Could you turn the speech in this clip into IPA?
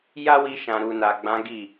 j a˦ w i˧ ʃ ã˨ ɾ u˨ n a˨ ɡ͡b ã˨˦ ɡ i˦˨

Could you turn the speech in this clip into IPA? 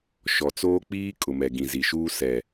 ʃ ɔ˨ t͡s oː˦ k͡p iː˦ kʼ ʊ˨ m ɛ˨ ɡ ĩ˨ z i˨ ʃ uː˦ s ɛ˨

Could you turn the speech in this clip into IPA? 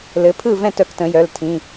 l ɘ˩˧ pʰ ɯ˥˨ v ɛ̃˥˨ t œ˩˧ k t ə̃˩˧ j œ˩˧˩ l tʰ ĩ˩˧˩

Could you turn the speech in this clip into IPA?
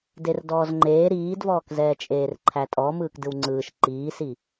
d e r d ɔː z ŋ͡ǃ eː ɾ iː d v ɔː k z ɛː t͡ʃʼ eː r ǃʰ æ tʼ ɔ m ɯː k d ɯ w ŋ͡ǀ ɯː ʃ ǃ iː s i

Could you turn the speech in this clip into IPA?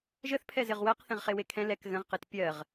ʒ ə θ pʰ ɛ z ɪ ʁ w ɜ q θ ɛ̃ ʁ χ e w e kʰ ɛ̃ l ɛ k ɣ ə̃ ʁ q e t pʲ ɜ ʁ

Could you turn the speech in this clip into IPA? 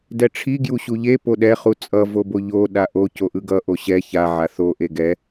d ɛ ʈ͡ʂʰ i ɡ j u ɕ u ʎ e p o ɗ ɛ χ u t͡sʼ ʌ v o b o ʎ o ɗ a ʔ o c o ʔ ɯ ɡ ʌ ʔ o ɕ ɛ ç a ʕ a θ o ʔ e ɡ ɛ

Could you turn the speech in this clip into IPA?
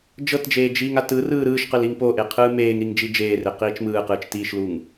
d͡ʒ ɤ t d͡ʒ eː d͡ʒ iː ŋ a t ɯ r ɯː ɾ ɯː ʃ q ɯ l i ŋ p o ʔ e qʰ ɯː m eː ŋ ɾ i ŋ d͡ʒ i d͡ʒ eː r e q iː t͡ʃ m ɯː q ɯː t͡ʃ t iː ʃ l uː ŋ

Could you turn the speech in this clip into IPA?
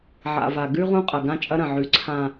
ʕ a̰˨ v a˨ ɡ ʉ˦ ʁ ũ˦ qʼ ɐ˨ ɡ ã˦ t͡ʃʼ ɐ˦ ɾ ɐ̃˨ ʕ ʉ˨˦ ǀʰ ã˨

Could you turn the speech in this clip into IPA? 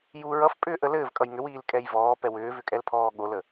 j u ɹ ʌ f pʼ ʏː ʔ ə l ɘː v kʼ ʌ j ŋ ʏ w iː l kʼ ɛ j v ɔː p ɛ w ʏː v ʏ kʼ ɛ l pʰ ɔː ɠ o l ə

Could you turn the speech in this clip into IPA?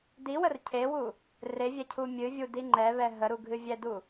d i w ə r cʰ e w u | r e vʲ ɛ cʰ u mʲ ɨ vʲ u d i ŋ͡ǃ ɛ β ɛ ɦ ə ɾ u ɡʱ ɨ vʲ ɛ d u

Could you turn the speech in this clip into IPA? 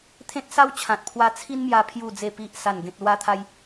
t̪ʰ ẽ˦ t̚ s a˦ w t͡ɕʰ ã˨ t̚ pʰ w a˧ t͡sʰ i˦ n m j a˧ pʰ j u˨˩ d͡z e˨˩ p i˨ ʔ s a˨˩ n ɡ ẽ˨ t̚ l w a˧ t̪ʰ a˧ j

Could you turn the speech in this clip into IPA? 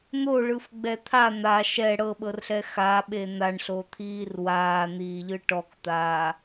n̪ o ɭ ɯ f ɡ͡b ɛ t̪ʰ a n̪ a ʃ ɛ ɽ ɤ ɓ ɤ r ɬ ɛ x a ɓ e n̪ a ɳ ɬ o t̪ʰ iː r w aː n̪ iː ʎ ɯ ʈ ɔ k t̪ aː

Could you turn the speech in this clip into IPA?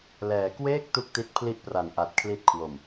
l ɛː˩˦ k w eː˥˩ k̚ t u˥˩ k̚ t i˦˥ t̚ pʰ l i˥˩ ʔ p r a˨˩ n ʔ a˨˩ t̚ kʰ l i˦˥ t̚ kʰ w o˨˩ m

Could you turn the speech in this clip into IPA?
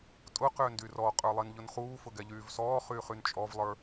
tʼ ʊ q ʏː n d y r ɔ qʼ ə˞ lˠ i n ʎ ʊ n χ uː f ʊ ɡ ɛ ʎ yː v s ɔː χ yː χ y n t͡ʃʼ ɔ v lˠ ə˞

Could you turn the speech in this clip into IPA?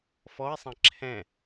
f ɔ e̯ sˤ ɛ̃ ǁʰ ɛ̃

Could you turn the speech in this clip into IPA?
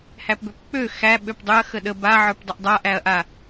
h æ p b ø p k͡p ø x æ ɓ ø p dˤ ø ɐ̯ x ə ɗ ə b a ʕ ə˞ p dˤ ə ʔ dˤ a ʔ æ ɐ̯ ʔ a

